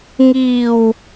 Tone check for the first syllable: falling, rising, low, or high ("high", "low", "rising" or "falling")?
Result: low